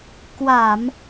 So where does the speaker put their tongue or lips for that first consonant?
velum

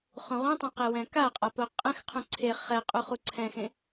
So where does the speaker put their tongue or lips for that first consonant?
uvula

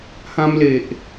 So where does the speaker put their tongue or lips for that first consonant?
throat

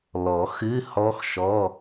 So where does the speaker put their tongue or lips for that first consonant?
tongue tip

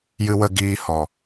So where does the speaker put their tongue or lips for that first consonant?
palate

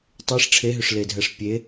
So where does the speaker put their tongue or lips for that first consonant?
tongue tip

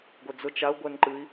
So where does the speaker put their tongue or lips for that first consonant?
velum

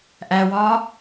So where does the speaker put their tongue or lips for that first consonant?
throat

